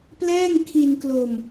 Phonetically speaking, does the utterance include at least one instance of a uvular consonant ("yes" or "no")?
no